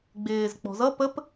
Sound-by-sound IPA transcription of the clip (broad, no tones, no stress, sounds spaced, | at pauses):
ɡ͡b ɪː z k͡p ɔ̤ z ʌ p ə p